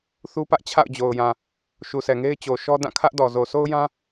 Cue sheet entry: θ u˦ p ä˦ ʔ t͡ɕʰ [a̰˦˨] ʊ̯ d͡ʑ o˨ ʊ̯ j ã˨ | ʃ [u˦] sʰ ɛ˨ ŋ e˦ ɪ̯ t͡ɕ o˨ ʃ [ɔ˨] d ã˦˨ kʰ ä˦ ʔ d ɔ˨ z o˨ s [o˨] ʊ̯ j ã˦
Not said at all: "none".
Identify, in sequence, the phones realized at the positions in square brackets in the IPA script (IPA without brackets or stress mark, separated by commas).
a̰˦˨, u˨, ɔ˦, o˦